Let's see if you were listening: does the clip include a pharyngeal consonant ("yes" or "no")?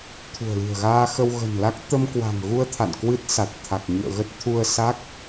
no